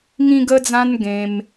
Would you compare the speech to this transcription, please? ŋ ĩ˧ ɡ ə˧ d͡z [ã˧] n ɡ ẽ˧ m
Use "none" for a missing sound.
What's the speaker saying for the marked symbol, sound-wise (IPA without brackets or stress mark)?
ã˧